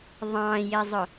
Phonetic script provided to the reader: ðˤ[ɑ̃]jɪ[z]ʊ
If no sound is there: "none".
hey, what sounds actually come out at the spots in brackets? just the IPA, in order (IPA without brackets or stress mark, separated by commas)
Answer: ɑ̃, zˤ